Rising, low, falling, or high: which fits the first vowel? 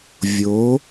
rising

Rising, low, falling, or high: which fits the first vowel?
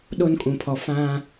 high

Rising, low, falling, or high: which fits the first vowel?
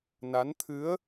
rising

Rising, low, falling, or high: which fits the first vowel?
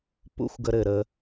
high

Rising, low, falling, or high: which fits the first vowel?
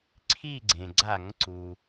falling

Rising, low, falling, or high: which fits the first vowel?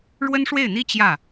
high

